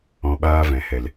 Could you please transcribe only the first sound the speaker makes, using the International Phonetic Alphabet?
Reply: ɔ̃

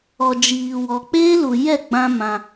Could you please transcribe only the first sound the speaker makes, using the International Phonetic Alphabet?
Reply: ɔ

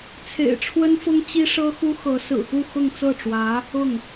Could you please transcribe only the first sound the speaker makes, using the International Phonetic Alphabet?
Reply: t͡sʰ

